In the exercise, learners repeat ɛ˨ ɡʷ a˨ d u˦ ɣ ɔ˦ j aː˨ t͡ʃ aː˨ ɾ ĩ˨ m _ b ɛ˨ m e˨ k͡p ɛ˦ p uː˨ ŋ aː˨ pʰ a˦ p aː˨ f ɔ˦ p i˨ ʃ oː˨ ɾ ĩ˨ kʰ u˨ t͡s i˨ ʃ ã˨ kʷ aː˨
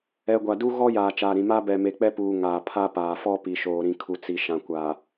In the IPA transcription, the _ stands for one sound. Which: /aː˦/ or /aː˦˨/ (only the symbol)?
aː˦